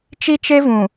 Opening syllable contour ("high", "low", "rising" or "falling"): high